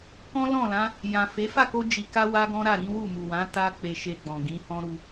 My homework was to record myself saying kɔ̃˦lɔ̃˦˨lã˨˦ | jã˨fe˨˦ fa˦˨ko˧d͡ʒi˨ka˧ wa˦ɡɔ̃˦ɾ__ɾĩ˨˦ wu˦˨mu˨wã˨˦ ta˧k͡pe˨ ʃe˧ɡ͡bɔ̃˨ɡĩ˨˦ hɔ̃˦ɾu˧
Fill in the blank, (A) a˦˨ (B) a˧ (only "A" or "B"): A